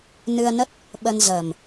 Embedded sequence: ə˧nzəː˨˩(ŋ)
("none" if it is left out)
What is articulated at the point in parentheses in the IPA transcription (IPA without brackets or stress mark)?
m